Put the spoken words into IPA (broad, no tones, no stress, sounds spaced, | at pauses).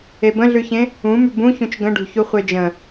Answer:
e b ə̃ ɮ ʉ ç ẽ | ũ m ʉ b ũ ç ũ t͡ʃ ɡ ə̃ ɖ ṳ ç u χʷ e d͡ʒ ə̃